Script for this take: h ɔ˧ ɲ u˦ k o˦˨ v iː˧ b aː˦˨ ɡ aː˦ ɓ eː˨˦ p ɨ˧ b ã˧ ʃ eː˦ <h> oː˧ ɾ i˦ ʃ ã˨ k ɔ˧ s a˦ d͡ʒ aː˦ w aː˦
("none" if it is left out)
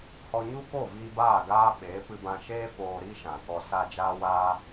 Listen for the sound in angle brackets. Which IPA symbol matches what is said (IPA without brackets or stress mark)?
f